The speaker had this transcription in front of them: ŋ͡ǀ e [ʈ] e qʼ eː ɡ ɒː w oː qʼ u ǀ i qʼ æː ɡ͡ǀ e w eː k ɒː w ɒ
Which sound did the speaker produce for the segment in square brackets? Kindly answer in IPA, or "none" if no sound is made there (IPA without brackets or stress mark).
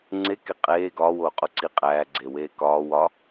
k